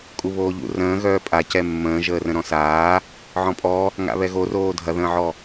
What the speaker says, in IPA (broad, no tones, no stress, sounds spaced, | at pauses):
kʼ u β oː ʎ ṵ r ə̃ː ɣ œː pʼ a c ɛ mː ə̃ː ʒ əː r ə̃ ɾ ɔ̃ s aː | ʕ ɔ̃ pʼ ɔ | ŋ a̰ β ɛ ɣ o r oː dʱ ɐ ð ə̃ː ʕ ɔ